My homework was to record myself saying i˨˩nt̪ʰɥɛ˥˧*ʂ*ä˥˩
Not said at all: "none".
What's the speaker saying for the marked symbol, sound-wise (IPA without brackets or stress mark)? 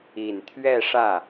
ʂ